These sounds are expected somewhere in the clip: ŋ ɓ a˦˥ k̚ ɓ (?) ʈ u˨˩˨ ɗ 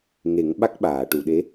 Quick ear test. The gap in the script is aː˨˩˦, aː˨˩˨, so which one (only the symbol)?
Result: aː˨˩˨